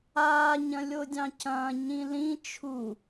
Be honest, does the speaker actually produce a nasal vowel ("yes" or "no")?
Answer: yes